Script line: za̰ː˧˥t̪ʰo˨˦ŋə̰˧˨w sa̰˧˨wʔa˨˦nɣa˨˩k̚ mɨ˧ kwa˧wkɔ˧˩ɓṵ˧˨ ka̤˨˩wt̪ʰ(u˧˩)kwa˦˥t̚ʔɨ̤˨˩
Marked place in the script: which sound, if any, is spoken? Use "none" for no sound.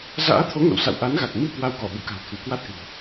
u˧˩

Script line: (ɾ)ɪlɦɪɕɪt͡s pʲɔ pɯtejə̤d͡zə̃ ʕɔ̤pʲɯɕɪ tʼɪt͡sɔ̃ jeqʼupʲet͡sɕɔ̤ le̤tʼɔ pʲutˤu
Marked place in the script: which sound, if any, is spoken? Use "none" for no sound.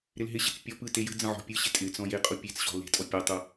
ɾ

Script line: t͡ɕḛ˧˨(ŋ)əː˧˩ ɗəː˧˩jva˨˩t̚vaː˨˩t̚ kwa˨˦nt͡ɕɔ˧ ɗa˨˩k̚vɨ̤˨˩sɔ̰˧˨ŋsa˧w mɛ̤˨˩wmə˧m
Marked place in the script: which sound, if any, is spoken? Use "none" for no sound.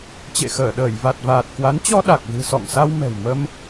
x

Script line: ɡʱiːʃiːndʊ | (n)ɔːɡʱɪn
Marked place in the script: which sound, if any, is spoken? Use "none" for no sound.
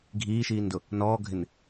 n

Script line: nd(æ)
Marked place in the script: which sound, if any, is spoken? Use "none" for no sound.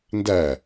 æ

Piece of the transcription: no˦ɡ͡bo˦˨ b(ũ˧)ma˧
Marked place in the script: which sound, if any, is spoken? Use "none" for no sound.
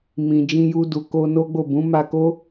ũ˨˦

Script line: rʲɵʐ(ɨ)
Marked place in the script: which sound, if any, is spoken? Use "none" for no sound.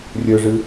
ɨ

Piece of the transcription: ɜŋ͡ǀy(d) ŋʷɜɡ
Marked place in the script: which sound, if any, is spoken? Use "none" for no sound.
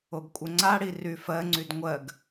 d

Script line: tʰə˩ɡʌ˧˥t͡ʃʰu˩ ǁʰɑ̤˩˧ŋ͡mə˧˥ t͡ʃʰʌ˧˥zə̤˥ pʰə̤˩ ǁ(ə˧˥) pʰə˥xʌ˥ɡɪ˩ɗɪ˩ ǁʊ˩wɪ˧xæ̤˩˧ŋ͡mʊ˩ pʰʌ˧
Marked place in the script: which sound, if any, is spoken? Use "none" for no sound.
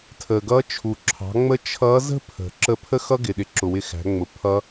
ə˧˥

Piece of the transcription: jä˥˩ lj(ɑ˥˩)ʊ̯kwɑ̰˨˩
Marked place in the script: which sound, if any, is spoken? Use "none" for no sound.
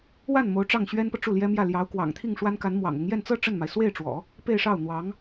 ɑ˧˥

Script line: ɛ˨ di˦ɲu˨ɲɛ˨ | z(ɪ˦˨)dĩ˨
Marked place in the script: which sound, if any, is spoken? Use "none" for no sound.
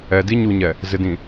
ɪ˨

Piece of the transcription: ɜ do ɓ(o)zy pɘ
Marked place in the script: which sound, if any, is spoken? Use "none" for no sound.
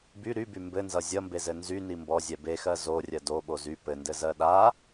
o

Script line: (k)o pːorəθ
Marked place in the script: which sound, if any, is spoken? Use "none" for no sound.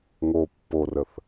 ŋ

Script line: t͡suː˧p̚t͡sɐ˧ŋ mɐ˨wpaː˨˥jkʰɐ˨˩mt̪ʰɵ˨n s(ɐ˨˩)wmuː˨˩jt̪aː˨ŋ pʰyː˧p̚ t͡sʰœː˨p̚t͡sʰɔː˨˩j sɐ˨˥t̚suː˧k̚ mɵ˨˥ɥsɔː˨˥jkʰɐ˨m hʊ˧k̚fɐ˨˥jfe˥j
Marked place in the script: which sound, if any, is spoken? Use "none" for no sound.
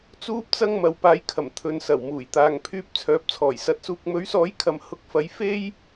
ɐ˨˩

